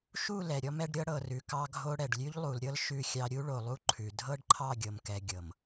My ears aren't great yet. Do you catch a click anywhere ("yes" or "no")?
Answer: yes